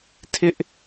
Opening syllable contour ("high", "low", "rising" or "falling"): high